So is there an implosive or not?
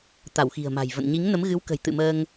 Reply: no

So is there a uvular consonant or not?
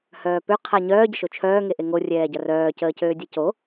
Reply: yes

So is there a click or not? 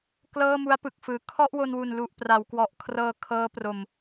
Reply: no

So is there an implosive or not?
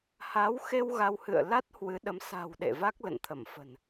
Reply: yes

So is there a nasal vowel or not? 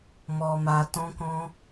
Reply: yes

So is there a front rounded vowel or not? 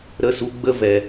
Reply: no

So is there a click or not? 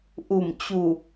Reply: no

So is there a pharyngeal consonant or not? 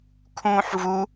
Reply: yes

